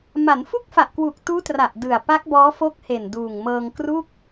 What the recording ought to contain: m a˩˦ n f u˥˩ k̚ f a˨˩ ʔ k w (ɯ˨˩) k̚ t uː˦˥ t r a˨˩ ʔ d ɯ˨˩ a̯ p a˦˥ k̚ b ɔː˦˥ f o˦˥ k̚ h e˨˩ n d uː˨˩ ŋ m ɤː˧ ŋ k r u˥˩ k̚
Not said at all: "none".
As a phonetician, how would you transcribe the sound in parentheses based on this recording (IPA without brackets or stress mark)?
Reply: u˨˩